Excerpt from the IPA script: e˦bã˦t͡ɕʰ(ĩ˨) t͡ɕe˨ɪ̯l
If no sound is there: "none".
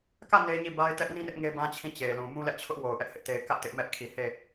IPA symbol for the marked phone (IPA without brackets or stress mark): ĩ˦˨